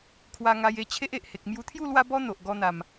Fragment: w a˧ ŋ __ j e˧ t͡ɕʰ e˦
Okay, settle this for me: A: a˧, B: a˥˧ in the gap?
A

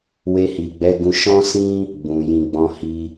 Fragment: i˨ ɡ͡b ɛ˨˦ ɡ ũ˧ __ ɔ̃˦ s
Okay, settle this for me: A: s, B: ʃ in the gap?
B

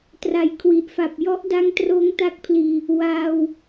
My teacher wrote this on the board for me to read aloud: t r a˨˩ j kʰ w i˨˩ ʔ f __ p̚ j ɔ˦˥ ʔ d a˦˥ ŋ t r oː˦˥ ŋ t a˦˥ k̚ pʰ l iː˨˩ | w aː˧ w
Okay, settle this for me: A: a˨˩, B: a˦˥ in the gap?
A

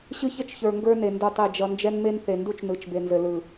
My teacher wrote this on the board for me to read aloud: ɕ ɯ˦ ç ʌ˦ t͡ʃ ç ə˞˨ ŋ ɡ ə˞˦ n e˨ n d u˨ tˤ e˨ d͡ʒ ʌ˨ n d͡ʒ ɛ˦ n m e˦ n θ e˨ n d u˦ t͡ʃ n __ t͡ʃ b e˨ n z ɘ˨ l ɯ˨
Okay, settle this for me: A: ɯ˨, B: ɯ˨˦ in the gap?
B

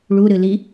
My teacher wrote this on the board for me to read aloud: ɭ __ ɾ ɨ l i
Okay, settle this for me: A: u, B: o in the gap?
A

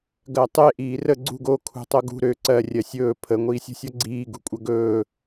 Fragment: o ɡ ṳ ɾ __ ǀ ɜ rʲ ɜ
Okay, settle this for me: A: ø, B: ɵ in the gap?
A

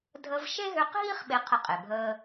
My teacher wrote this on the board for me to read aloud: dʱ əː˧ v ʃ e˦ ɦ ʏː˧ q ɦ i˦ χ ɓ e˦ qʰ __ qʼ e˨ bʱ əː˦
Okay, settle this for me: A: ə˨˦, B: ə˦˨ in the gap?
B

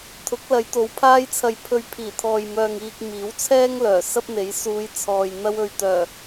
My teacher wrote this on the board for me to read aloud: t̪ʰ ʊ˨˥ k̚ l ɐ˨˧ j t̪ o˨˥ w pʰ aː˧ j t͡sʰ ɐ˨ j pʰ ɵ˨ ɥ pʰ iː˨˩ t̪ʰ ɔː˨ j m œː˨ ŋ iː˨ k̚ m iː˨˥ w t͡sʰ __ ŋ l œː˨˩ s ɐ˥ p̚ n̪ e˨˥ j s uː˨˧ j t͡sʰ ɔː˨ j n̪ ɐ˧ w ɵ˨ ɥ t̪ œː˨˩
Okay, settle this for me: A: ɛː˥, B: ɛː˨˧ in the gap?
A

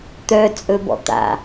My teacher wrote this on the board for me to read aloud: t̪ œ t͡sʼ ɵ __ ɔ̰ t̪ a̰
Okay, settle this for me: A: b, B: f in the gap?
A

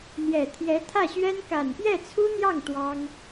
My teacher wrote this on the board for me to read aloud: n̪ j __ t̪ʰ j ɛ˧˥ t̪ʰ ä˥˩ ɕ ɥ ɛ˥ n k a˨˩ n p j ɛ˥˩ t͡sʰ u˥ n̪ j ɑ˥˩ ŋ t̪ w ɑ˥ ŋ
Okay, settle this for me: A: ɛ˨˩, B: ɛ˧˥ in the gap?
A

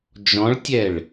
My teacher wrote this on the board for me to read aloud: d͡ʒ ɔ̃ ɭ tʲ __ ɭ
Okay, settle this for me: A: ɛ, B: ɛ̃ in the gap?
A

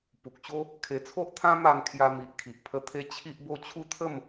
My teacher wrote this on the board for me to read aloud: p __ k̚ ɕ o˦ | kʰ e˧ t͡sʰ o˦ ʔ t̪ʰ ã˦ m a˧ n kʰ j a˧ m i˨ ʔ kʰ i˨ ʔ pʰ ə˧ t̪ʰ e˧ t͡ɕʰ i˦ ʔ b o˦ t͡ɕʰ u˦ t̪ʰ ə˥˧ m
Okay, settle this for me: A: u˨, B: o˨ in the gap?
A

